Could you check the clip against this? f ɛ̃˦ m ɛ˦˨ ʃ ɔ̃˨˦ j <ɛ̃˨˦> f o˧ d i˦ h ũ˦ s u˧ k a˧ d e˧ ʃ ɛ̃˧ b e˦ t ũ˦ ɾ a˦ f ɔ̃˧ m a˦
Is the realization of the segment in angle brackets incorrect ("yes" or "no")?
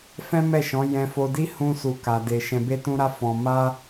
yes